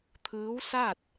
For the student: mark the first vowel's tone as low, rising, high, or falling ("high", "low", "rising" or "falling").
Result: rising